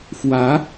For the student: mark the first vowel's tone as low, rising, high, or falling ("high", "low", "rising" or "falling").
rising